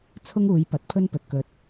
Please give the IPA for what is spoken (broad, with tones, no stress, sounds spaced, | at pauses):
t͡sʰ ʊ˥ ŋ uː˨˧ j p ɐ˨˥ t̚ pʰ ɵ˥ n p ɵ˨ t̚ k ɵ˧ t̚